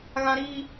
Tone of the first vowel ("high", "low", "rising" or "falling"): high